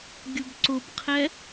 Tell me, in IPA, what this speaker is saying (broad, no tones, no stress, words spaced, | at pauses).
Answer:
ɡʲʊbǀʊbqʰɛ